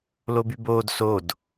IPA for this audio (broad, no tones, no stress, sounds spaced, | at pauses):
l o b y b oː d s o d